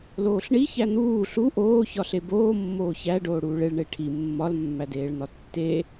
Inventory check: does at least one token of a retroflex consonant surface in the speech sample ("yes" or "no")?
yes